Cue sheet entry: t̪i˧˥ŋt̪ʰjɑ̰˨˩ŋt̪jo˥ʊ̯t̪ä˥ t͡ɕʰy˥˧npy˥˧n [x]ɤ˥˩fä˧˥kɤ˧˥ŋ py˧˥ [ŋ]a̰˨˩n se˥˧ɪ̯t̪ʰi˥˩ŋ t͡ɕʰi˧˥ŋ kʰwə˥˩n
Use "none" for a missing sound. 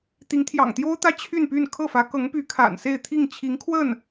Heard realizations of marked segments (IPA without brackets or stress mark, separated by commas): kʰ, kʰ